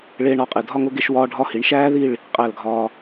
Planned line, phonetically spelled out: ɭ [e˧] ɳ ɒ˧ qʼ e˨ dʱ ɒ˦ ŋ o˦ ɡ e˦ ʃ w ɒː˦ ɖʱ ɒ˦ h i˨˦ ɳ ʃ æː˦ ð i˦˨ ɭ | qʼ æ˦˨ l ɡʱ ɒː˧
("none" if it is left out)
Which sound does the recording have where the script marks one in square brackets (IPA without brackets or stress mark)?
eː˧